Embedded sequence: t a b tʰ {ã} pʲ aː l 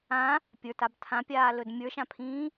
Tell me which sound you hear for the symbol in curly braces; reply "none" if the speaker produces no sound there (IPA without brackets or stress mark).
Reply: ã